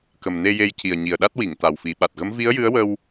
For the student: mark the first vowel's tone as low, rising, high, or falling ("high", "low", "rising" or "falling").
low